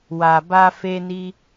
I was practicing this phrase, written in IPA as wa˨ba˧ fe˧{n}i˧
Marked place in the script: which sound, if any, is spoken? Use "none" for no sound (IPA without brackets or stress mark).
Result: n